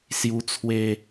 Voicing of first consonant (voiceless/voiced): voiceless